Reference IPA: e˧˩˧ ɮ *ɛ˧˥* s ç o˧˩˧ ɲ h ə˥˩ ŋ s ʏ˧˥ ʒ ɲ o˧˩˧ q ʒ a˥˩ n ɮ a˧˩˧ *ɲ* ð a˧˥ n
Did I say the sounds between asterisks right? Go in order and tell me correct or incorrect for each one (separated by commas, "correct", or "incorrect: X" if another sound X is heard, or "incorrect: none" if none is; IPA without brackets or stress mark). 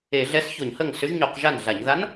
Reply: correct, correct